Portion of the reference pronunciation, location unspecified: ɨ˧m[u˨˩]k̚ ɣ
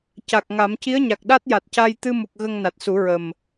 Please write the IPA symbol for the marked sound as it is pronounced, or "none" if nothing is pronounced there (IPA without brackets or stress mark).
u˨˩